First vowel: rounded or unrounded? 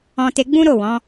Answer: rounded